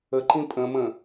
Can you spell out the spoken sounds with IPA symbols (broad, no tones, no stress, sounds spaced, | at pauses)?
ə ǃ ĩ pʼ ə̃ m ə̃